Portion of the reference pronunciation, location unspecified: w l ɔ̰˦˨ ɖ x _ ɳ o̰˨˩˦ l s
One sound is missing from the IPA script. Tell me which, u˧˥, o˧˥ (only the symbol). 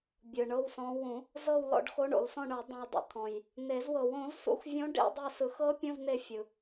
o˧˥